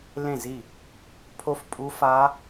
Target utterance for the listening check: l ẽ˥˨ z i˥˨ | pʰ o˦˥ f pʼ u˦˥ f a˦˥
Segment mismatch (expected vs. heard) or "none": none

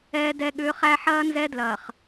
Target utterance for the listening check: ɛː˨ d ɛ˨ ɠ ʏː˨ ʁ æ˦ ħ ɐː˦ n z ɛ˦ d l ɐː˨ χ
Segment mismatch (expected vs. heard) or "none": ʁ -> χ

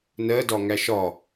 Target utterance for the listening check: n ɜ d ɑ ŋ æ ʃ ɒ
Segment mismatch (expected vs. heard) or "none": ɑ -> ɒ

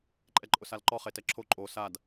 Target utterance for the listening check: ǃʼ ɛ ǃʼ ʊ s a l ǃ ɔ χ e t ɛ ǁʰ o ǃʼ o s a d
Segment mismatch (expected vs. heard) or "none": none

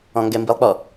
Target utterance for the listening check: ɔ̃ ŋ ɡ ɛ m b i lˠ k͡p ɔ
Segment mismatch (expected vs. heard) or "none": none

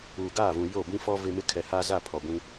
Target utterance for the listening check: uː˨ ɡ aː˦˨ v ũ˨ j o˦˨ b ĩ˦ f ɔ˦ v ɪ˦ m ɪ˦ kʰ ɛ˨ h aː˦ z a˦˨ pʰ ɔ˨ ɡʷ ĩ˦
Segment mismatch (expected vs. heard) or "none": none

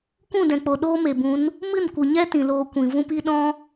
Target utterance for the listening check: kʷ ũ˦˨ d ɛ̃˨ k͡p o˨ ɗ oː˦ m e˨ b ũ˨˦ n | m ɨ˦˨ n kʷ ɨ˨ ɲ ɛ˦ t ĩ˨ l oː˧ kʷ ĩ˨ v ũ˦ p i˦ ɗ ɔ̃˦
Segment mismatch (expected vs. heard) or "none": none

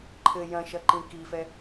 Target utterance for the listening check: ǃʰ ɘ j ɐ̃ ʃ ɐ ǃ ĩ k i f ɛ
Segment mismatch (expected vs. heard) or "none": none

